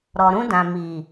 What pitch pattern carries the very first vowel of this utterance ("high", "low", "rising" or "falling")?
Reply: low